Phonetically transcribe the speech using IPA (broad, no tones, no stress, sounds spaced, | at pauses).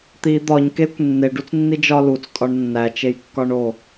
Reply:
t̪ i d̪ ɒ ɲ k e kʷ nː e ɖ u t͡s nː i d͡ʒ ɒ l u t͡s tʼ ɒ ɳ nː æ t͡ʃ e j kː ɒ ɳ o